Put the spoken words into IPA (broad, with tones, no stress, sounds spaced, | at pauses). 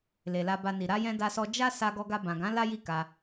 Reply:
l e˨ l a˧ b a˧ n i˨ ɾ a˧ j ɛ̃˧ d a˧ s ɔ˧ d͡ʒ a˦ s a˧ ɡ ɔ˧ ɡ a˧ b ã˨ ɡ ã˨˦ l a˦ j i˦˨ k a˧